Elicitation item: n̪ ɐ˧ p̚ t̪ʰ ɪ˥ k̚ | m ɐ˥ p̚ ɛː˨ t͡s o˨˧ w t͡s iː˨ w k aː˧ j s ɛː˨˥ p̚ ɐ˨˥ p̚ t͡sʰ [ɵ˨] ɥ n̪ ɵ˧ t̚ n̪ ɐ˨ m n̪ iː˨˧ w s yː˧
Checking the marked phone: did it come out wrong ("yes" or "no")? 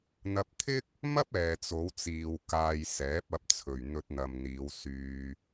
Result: yes